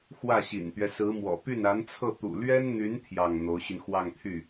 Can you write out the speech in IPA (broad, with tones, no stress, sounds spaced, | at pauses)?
x w ä˥˩ ɕ ḭ˨˩ n t̪ ɥ ɛ˦ s ɹ̩˧˥ m w ɔ̰˨˩ p y˥˩ n a˧˥ n t͡sʰ ɤ˥˩ t̪ ṵ˨˩ l ɥ ɛ˥ n n̪ y˧˥ n t̪ʰ j ɑ˥˩ ŋ n̪ o˧˥ ʊ̯ ɕ y˧ n x w ɑ˥˧ ŋ t̪ʰ y˥˩